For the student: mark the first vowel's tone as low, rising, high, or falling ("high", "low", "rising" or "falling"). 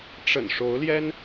low